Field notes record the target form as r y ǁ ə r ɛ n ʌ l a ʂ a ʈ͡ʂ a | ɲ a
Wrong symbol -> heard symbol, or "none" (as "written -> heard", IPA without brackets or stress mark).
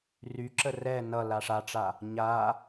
none